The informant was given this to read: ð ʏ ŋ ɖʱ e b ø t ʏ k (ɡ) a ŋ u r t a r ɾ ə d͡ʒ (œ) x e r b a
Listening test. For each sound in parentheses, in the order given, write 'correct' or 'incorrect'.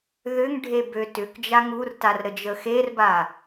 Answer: incorrect: d͡ʒ, incorrect: ə

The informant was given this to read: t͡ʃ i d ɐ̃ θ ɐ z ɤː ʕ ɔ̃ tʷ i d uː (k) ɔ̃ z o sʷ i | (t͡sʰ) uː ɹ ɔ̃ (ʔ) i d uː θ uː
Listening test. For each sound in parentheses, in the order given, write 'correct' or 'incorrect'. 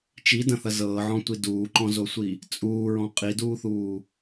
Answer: incorrect: ǃ, incorrect: t͡sʼ, incorrect: qʼ

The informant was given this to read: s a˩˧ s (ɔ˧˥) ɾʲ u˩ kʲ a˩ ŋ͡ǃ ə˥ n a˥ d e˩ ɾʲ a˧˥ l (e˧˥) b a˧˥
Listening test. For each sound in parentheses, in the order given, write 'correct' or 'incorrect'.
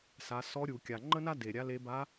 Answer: correct, correct

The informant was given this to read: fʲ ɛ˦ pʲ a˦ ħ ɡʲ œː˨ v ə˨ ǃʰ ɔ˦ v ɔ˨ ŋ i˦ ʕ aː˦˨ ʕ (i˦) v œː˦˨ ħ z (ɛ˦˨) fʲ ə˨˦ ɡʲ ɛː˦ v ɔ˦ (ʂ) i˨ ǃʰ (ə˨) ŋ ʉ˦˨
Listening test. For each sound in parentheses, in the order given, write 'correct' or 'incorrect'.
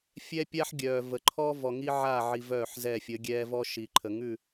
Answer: incorrect: i˨, correct, incorrect: ʃ, correct

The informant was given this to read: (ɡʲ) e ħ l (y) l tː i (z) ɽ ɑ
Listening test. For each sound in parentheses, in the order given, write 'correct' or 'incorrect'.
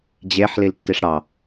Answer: incorrect: d͡ʑ, incorrect: i, incorrect: ʂ

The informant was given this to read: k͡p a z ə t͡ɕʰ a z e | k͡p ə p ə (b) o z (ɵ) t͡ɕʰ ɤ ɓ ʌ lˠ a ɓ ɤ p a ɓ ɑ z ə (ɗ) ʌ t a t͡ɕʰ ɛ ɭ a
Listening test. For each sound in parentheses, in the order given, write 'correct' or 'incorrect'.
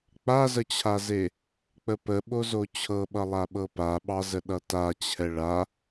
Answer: incorrect: ɓ, incorrect: o, correct

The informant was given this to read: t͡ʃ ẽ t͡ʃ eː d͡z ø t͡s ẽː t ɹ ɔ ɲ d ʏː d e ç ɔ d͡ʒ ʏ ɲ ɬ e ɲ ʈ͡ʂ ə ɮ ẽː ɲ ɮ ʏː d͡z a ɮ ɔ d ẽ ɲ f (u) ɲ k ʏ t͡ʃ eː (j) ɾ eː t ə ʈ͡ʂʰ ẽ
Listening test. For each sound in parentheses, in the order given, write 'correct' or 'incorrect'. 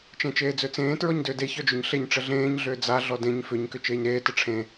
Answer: incorrect: ʏ, incorrect: ɲ

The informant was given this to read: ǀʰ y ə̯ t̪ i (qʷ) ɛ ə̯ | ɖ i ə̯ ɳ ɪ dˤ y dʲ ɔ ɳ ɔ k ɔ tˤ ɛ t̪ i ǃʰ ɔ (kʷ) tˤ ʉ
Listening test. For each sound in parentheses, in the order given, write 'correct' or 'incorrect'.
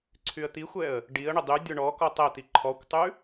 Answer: incorrect: xʷ, correct

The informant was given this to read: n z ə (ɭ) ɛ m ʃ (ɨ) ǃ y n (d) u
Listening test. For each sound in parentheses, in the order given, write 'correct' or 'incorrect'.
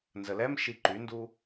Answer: incorrect: l, incorrect: i, correct

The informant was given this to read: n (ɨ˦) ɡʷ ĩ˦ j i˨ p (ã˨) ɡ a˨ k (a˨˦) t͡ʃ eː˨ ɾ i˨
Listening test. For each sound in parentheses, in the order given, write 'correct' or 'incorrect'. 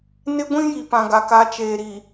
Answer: incorrect: ɪ˦, correct, correct

